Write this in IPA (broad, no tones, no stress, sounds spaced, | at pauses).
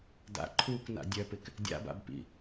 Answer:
d a̰ ǃʰ uː k n a̰ dʲ œ p ɪ k | dʲ a̰ b a̰ b p ḭ